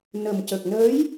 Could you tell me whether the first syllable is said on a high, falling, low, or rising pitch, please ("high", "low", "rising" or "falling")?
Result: low